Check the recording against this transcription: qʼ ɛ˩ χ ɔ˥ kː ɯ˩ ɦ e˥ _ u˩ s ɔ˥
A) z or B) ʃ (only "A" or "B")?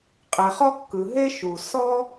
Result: B